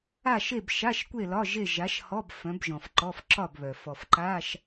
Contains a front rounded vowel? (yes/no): yes